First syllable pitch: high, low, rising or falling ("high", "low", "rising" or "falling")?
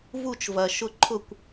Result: falling